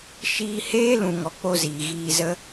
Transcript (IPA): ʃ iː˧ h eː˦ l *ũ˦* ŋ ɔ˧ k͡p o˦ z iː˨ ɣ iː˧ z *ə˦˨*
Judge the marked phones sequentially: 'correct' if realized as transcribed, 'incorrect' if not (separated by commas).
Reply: incorrect, incorrect